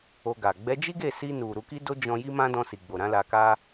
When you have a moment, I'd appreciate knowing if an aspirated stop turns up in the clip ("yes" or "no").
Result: no